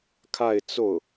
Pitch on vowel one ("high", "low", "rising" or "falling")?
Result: falling